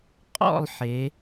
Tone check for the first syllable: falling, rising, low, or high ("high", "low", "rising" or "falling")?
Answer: falling